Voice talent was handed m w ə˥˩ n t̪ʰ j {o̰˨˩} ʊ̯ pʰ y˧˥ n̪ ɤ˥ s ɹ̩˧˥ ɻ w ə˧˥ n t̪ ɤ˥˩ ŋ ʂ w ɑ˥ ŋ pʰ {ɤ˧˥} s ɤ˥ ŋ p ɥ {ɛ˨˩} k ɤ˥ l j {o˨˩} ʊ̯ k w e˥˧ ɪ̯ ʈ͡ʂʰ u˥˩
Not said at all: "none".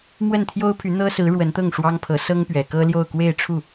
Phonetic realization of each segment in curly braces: o˥, ɤ˧˥, ɛ˨˩, o˥˧

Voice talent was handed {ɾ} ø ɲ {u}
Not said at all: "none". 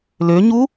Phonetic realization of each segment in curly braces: l, u

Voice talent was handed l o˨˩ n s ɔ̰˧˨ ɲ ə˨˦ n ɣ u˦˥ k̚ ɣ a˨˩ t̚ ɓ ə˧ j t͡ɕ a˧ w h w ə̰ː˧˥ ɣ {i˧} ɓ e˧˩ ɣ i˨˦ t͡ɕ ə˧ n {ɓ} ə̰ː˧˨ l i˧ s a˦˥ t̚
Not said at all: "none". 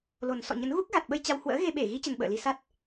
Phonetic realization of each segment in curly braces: e˧, ɓ

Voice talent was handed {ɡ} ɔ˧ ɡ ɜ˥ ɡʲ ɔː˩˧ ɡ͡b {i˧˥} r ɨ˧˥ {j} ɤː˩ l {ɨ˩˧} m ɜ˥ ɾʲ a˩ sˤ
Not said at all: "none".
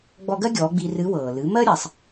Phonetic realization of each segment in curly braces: ɡ͡b, i˧, w, ɨ˩˧

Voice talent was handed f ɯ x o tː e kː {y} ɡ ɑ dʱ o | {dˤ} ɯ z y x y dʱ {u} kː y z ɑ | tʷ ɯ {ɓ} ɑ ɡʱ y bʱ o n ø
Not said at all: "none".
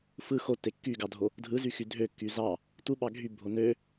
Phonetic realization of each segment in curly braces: y, dʱ, ø, ɓ

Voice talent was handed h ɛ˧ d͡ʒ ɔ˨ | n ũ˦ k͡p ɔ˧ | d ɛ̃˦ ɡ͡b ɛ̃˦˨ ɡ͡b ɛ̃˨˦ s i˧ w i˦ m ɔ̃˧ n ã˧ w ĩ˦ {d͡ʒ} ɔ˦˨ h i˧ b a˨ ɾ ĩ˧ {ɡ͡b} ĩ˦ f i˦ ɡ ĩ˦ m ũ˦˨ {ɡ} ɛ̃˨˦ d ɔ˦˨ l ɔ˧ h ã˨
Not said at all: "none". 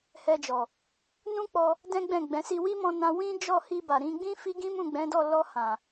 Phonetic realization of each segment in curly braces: d͡ʒ, ɡ͡b, ɡ͡b

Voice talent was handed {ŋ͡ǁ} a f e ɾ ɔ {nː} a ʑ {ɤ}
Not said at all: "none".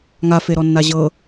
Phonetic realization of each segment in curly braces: ŋ, nː, ɤ

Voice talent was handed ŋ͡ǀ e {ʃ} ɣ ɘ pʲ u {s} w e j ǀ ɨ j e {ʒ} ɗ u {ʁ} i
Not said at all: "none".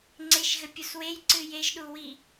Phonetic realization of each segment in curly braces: ʃ, s, ʒ, w

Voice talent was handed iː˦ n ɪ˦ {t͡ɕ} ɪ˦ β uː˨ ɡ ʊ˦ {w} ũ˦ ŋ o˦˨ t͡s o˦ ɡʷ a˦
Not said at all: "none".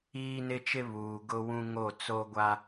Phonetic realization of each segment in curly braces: t͡ʃ, w

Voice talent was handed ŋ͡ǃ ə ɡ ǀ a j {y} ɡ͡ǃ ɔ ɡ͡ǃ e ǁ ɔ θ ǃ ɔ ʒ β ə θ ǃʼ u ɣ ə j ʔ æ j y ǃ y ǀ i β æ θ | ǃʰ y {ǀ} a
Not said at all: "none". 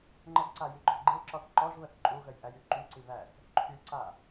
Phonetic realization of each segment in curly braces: y, ǀ

